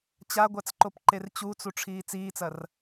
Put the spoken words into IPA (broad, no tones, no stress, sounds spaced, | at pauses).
t͡ɕ a ɡʷ a t͡s ǃ o p ǃ e r t͡ɕ u t͡s u ʈ͡ʂʰ iː t͡s iː t͡s ɐ r